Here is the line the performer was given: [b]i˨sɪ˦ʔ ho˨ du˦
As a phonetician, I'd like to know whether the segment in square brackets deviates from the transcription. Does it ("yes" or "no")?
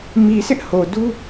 yes